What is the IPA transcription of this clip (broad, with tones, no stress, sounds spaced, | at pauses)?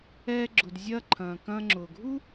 ɛː˧ ɡ͡ǁ ʊ˩ d zʲ ɐː˥ ǃʰ ɐ̃ː˩ k ɐ̃ː˧ ŋ͡ǁ ʊː˩ ɡʱ u˥